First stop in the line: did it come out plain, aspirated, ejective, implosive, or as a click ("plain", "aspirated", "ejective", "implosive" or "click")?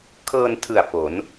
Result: aspirated